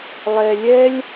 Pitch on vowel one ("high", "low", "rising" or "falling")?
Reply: low